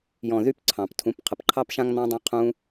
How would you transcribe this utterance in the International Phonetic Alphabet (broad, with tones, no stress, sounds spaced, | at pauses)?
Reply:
j ɔ̃˨ ð y˧ p ǀʰ ɑ̃˨ p tʰ ũ˨˦ p qʰ ə˨ p ǃʰ ɑ˦ p ʃ ã˦ ŋ n̪ ɑ̃˧ dˤ ã˧ qʰ ũ˧